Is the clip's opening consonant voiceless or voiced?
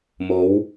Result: voiced